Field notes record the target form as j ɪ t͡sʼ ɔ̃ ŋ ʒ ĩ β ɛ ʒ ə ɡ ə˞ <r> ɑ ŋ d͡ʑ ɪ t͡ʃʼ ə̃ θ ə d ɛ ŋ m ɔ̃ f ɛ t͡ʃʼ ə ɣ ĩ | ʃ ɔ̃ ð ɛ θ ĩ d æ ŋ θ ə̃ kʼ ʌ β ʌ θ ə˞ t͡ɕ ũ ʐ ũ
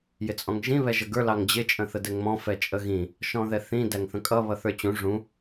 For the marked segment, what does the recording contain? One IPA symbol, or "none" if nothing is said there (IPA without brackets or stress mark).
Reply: l